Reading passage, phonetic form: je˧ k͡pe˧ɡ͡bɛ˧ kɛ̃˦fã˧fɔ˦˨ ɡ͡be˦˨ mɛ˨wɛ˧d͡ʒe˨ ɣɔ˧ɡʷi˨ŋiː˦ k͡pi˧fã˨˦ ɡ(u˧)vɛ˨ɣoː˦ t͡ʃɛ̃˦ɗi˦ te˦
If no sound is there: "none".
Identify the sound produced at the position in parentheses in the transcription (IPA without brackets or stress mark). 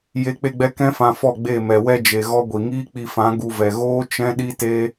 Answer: u˧